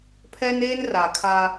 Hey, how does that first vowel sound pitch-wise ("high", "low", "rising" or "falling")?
high